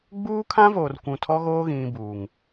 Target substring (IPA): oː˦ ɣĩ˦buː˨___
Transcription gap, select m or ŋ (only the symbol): ŋ